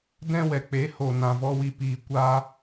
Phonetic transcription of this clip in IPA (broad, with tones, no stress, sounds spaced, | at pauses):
d ɛ̃˧ w ɛ˨ k͡p e˨˦ h o˨ n ã˨ v ɔ˦ w i˧ p iː˧ kʷ aː˧